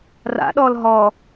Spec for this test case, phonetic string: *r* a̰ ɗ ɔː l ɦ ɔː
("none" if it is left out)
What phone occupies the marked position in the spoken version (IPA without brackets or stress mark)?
r